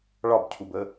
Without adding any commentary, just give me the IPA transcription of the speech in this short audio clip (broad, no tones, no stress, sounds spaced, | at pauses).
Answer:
ɭ ɒ b cʰ u b ə